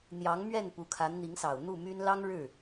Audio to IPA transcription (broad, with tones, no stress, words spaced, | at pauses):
n̪jɑ˧˥ŋmɥɛ˥˩n pu˧˥kʰa˧˥n n̪i˧˥ŋsɑ˨˩ʊ̯ n̪u˥˩my˥n lɑ˥ŋɻɻ̩˥˩